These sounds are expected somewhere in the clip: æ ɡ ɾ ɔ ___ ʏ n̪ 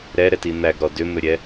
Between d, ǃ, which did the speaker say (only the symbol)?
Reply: d